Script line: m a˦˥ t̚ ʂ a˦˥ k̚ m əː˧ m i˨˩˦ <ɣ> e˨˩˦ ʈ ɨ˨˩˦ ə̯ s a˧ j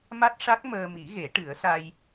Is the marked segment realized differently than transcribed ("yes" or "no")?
no